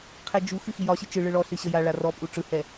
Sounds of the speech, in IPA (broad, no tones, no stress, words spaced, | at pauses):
qʰɛd͡ʒuxɨ xijɒɕɨ t͡ʃɨɭɯ ɭɔɬɨ ɕəjaɭa rɔpʼu ʈ͡ʂɯhɛ